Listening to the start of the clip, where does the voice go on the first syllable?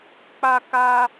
high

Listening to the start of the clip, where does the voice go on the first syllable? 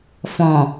low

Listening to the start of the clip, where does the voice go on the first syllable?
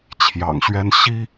low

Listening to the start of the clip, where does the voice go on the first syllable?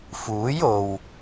rising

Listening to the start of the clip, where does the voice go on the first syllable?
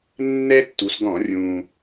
high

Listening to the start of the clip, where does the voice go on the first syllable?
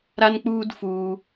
high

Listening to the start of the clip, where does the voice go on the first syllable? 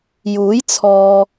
rising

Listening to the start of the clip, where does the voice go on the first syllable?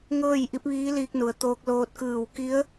falling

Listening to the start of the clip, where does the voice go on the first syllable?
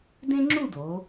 high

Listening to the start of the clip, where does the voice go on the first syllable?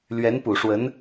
rising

